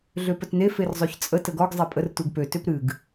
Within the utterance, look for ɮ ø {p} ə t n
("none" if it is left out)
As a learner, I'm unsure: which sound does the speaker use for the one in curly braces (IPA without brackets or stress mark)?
p